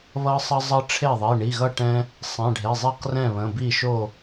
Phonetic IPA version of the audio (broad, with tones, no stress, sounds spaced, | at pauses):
β ʌ˦ sˤ ɐ˦ zˤ ʌ˦ ʈ͡ʂʰ e˥˩ ðˤ i˩˧˩ ɳ i˩˧˩ ɣ ʌ˥˩ ʈ ɛ̃˦ | sˤ ɛ̃˩˧˩ ɖʱ e˩˧˩ zˤ e˥˩ q r ɛ̃˥˩ β ə̃˩˧˩ b i˥˩ ʃ o˥˩